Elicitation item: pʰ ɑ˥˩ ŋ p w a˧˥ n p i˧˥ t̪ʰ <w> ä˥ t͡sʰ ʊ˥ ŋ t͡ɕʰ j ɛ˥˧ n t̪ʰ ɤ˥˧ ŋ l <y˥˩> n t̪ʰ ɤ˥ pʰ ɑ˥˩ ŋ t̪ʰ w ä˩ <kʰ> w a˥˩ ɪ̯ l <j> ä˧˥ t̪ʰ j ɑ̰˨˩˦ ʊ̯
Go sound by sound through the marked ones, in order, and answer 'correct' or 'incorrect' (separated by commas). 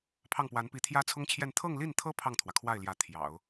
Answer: incorrect, incorrect, correct, correct